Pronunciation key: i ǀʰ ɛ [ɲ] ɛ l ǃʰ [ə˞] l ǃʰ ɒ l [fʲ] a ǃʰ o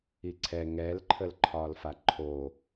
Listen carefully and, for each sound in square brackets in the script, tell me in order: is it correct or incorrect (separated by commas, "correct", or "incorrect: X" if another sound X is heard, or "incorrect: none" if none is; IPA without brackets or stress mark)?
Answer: incorrect: ŋ, incorrect: ə, incorrect: f